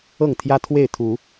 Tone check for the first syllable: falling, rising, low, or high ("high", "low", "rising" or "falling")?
falling